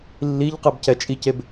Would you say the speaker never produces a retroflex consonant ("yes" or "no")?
yes